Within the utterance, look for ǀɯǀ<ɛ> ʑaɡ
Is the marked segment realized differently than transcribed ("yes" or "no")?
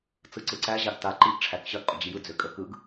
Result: yes